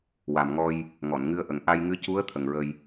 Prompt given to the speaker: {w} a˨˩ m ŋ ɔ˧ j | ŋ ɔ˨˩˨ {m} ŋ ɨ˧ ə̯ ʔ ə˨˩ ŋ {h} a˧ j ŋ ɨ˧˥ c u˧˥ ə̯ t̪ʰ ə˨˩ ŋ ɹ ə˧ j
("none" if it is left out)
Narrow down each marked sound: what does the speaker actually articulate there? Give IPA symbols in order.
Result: w, n, ʔ

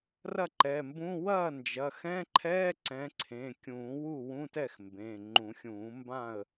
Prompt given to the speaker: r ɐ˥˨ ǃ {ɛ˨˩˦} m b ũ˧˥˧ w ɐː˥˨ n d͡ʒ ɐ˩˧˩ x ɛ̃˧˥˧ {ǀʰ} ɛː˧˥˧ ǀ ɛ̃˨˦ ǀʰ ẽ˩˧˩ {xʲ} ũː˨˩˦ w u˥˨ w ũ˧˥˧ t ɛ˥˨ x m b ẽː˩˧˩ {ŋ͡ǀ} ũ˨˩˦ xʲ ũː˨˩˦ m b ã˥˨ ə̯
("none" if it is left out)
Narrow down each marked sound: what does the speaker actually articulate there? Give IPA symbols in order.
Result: ɛ˩˧˩, ǃʰ, kʲ, ŋ͡ǃ

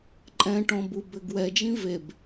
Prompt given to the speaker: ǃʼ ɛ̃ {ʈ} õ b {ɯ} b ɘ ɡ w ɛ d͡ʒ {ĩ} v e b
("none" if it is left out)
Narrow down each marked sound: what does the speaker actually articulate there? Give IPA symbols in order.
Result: ʈ, u, ĩ

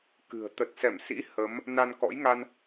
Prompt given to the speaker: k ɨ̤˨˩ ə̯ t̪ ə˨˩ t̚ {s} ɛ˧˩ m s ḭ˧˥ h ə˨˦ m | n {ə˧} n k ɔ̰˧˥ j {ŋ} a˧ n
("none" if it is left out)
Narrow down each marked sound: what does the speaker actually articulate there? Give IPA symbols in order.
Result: s, a˧, ŋ

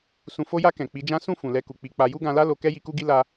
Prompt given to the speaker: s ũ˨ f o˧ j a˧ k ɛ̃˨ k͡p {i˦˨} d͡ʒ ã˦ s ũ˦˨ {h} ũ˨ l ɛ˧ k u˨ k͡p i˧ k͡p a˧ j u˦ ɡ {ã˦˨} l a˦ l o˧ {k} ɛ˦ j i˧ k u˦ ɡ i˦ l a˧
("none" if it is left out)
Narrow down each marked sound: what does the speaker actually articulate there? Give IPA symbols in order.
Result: i˨˦, f, ã˧, k

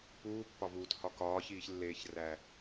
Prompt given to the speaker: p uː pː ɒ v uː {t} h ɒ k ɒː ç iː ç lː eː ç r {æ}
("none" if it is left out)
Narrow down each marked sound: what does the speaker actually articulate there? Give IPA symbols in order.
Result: t, æ

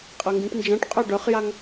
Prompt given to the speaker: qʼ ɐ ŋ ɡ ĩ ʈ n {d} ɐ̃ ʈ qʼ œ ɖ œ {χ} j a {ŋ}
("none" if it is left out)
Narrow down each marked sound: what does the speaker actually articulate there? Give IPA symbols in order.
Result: d͡ʒ, χ, ŋ

